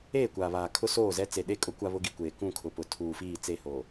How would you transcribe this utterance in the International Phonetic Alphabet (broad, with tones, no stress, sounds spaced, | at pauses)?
eː˦˨ kʷ aː˨ β aː˨ kʰ ʊ˦ s oː˦˨ z ɛ˦ t͡s e˨ ɗ e˦ kʼ ʊ˦ kʷ a˦ β ʊ˦ ɡ i˨ kʷ eː˨ k ũ˦˨ kʰ ʊ˨ p ʊ˨ tʰ uː˨ f iː˦˨ t͡s e˦˨ h oː˨